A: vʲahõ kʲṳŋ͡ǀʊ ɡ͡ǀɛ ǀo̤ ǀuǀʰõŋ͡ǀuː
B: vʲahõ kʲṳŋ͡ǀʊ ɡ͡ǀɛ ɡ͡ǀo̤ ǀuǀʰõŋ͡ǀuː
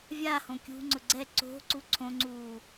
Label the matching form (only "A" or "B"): A